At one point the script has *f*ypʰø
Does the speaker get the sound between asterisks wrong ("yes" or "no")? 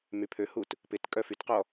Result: yes